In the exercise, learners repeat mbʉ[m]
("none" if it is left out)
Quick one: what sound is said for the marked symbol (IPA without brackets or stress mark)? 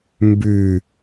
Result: none